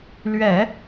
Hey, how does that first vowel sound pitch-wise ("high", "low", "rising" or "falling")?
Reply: low